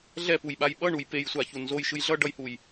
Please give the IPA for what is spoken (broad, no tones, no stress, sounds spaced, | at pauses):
ɮ ɛ p u j ɓ a j ɓ ʌ ɳ u j p e j sʷ a ç u n z o j ʃ ɯ j ɮ ʌ ɖ ʌ j h u j